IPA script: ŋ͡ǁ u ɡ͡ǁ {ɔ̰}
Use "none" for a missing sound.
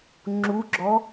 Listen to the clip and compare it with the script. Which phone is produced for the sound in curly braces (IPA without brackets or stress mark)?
ɔ